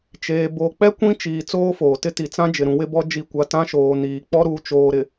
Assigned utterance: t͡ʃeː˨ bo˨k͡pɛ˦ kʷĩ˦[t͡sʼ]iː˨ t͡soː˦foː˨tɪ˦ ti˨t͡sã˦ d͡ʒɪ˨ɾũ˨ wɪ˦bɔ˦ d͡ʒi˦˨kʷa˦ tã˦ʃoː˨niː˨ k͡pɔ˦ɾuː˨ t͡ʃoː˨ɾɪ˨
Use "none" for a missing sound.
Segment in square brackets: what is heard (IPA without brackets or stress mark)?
t͡ʃ